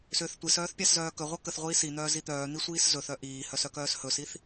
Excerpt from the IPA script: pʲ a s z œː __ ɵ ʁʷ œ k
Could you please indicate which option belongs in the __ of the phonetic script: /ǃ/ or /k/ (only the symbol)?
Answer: k